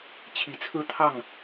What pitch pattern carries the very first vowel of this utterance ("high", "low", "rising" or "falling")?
low